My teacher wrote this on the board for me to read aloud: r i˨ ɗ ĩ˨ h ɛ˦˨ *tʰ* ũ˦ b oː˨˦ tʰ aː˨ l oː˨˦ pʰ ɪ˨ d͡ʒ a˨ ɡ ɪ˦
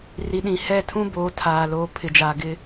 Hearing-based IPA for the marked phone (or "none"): tʰ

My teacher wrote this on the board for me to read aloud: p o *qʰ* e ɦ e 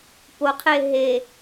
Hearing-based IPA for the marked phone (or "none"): qʰ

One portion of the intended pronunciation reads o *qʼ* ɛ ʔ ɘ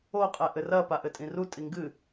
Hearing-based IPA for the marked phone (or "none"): qʼ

